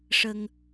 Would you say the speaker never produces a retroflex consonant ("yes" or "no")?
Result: no